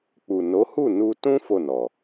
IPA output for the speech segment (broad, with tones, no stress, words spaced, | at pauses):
k͡pu˨no˨˦hu˦˨ nu˧tũ˦ fo˦˨nɔ˨